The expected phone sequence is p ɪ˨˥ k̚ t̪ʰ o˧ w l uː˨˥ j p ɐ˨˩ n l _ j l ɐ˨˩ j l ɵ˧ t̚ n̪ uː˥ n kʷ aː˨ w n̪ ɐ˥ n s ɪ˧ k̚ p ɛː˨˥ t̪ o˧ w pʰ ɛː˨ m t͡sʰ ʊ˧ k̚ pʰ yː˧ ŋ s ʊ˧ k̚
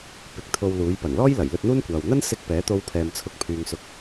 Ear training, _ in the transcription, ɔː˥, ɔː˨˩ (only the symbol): ɔː˥